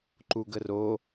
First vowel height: high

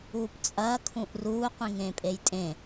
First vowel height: high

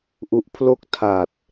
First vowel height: high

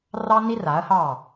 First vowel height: low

